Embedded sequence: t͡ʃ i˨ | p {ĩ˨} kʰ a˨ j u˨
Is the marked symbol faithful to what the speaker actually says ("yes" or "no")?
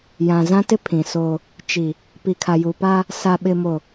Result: no